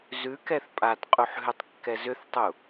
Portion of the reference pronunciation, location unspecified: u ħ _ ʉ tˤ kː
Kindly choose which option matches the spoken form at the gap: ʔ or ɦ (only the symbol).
ɦ